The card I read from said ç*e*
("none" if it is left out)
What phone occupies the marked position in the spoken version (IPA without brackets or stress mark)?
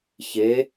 e